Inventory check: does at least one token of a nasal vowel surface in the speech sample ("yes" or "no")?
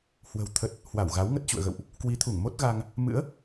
no